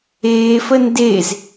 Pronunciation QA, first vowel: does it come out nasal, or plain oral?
oral